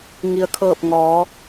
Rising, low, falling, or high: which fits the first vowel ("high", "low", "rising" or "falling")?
low